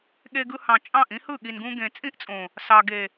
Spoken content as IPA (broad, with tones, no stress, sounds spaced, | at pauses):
ɠ e˧ ɡ ɯ˧ h ɑ̃˨ t͡ʃʼ ɑ̃˦˨ ʔ ĩ˦ h ɯ˦˨ ɠ i˨ n ɡ ũ˧ ɡ ẽ˨ t͡sʼ ĩ˦ ʔ t͡sʼ õ˨ | s ɑ˨ ɡ e˨